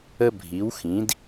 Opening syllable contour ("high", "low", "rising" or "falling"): high